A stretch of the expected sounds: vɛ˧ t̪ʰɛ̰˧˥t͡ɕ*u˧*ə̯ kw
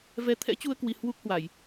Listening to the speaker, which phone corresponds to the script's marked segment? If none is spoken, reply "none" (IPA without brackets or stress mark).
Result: u˧